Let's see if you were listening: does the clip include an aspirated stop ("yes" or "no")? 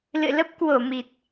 no